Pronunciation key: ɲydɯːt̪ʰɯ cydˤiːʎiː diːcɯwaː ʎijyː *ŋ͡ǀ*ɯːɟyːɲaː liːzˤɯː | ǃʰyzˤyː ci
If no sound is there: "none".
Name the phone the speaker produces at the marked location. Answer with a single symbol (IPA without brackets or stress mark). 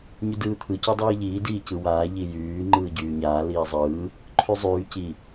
ŋ͡ǃ